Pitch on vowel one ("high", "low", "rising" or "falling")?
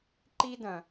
high